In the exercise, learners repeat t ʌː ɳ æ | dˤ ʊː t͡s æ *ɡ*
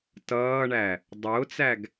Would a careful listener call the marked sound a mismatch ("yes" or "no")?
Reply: no